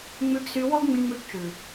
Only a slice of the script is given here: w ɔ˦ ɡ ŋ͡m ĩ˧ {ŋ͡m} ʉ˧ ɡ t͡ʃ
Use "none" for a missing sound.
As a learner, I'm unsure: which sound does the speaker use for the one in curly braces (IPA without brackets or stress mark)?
ŋ͡m